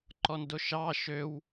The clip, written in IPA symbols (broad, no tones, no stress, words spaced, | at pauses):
ǃɔndoʃɑ ʃøw